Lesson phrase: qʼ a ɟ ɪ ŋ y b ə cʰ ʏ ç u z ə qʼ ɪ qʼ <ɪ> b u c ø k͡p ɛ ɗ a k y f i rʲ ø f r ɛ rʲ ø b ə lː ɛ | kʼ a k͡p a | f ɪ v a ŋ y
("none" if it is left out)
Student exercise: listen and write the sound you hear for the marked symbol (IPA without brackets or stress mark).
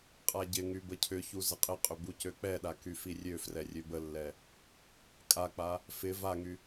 ʏ